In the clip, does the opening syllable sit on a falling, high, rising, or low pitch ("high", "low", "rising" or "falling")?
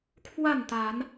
falling